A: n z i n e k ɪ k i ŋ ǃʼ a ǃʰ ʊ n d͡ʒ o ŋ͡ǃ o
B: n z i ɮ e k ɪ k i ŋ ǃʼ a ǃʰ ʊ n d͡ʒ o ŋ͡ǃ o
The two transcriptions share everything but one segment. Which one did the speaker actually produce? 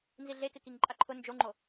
B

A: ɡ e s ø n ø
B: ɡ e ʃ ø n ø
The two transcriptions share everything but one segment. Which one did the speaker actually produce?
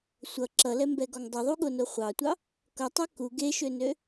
B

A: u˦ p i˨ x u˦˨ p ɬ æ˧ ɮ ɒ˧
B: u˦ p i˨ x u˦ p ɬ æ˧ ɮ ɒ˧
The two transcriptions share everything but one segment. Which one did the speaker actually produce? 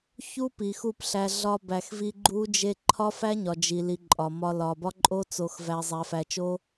A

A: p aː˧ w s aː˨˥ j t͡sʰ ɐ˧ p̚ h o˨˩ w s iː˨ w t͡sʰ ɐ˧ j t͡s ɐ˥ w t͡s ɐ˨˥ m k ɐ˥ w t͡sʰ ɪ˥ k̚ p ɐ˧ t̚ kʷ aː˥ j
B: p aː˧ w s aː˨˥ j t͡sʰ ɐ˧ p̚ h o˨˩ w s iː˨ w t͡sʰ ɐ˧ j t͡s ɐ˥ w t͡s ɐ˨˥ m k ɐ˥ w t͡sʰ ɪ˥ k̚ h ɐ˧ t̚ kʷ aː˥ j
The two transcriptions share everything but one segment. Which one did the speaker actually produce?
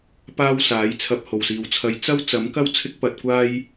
A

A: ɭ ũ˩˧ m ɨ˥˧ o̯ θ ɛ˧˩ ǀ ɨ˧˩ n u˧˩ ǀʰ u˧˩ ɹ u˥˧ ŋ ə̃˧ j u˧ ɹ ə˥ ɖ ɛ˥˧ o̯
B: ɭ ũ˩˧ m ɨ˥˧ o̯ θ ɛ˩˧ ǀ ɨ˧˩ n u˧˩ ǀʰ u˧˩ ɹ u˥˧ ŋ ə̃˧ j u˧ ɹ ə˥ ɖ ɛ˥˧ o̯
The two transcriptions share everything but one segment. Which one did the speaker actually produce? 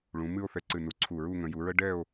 A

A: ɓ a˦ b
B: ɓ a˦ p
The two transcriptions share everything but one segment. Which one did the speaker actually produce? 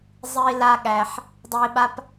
B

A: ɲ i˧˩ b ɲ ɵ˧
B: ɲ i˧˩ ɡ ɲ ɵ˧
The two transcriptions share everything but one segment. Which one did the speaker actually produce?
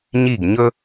B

